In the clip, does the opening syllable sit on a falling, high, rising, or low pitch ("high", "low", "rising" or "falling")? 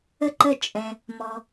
high